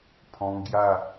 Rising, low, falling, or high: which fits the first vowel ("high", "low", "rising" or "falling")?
high